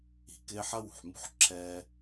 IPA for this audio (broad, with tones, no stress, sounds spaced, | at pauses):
i̤˩ k ɪː˦ ħ ɐ˥ w ṳ˩ ħ m ṳ˥ ħ ǁʰ ɛː˦